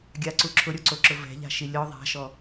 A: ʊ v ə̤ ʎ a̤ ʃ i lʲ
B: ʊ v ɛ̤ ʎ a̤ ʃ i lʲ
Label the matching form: B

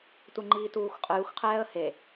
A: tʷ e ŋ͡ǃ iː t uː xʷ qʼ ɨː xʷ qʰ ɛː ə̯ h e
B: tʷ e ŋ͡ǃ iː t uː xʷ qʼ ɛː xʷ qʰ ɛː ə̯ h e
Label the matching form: A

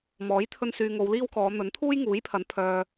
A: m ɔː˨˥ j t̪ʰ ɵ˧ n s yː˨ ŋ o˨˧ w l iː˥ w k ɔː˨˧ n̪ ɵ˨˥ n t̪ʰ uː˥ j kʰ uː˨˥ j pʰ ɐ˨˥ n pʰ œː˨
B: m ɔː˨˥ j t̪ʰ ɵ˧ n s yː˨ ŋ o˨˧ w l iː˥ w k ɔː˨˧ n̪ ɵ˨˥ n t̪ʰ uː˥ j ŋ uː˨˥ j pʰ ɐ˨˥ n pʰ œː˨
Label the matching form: B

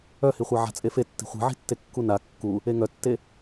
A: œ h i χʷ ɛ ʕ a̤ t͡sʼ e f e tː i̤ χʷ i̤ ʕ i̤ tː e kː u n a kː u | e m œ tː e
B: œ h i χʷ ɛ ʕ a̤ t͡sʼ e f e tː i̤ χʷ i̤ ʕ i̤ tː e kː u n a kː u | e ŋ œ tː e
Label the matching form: B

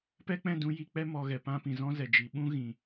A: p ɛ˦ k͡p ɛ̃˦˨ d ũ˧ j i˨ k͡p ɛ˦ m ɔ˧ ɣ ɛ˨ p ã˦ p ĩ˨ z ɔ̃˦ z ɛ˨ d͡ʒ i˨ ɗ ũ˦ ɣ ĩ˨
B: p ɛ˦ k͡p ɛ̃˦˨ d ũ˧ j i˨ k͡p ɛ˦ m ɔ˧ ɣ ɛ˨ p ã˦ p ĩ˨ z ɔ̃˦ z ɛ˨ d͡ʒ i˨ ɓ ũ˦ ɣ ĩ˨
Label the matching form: B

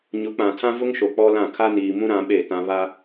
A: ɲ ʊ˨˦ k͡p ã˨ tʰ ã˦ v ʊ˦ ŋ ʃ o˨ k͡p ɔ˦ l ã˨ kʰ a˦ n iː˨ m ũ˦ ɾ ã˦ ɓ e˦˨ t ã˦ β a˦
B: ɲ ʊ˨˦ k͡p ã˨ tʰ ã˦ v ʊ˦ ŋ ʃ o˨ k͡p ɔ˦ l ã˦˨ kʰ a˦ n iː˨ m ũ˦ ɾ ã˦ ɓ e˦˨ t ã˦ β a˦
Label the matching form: B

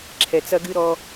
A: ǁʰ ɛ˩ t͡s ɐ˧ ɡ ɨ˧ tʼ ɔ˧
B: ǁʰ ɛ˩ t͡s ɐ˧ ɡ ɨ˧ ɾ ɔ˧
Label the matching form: B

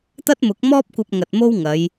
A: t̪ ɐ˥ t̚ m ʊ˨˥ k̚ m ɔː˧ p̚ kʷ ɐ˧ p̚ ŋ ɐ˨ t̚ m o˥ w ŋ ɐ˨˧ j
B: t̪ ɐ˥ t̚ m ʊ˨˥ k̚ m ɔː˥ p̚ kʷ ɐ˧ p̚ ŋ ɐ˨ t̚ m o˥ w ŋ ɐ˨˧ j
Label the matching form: B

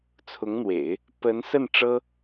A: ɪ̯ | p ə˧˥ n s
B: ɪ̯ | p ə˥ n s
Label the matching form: A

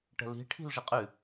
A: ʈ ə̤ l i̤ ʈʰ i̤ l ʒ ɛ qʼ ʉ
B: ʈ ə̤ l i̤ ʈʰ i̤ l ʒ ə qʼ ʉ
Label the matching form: B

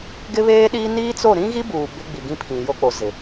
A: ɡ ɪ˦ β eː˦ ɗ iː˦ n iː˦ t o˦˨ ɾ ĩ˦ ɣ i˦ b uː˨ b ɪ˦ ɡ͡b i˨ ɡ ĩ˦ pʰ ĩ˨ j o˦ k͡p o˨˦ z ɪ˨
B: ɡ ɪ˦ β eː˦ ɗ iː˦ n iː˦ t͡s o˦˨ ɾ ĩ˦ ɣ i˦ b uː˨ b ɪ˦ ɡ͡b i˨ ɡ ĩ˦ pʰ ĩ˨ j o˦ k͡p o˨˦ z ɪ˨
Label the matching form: B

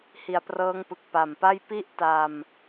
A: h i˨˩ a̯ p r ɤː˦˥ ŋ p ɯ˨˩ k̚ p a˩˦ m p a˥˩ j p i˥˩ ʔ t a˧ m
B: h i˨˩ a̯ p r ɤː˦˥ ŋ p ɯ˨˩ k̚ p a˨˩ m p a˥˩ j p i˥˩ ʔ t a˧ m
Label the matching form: B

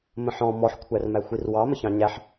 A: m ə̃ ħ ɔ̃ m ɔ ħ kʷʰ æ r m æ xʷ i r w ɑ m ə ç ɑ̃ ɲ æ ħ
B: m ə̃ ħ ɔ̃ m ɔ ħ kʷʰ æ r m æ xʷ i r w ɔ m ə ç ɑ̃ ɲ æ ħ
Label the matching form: A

